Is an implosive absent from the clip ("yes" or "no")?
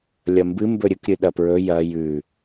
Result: no